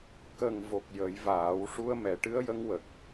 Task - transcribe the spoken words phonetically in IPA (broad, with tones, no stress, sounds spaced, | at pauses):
k ə˨˩ ŋ v o˨˩ k̚ j ə˨˩˦ j v aː˨˩˦ w ʂ u˧ ə̯ m ɛ˨˩˦ ʈ ɨ˧˥ ə̯ j ə˧˥ ŋ w ə˨˩ k̚